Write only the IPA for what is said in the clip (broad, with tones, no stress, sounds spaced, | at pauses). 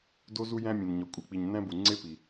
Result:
d o˥ z u˥ j æ̃˥ mʲ ẽ˩ n ɲ ɒ˩ kʷʼ e˩ k͡p i˩ ɲ n æ̃˥ b u˩ ŋ͡ǀ e˥ p i˩